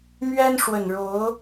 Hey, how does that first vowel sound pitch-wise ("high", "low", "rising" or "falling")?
high